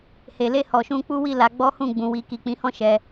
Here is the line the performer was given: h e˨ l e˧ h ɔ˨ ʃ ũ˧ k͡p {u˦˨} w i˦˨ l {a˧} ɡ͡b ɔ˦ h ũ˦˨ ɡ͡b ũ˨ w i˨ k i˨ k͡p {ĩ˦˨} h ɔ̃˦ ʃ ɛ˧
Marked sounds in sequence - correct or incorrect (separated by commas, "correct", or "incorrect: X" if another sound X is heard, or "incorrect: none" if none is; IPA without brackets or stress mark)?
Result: incorrect: u˦, incorrect: a˨˦, incorrect: ĩ˨˦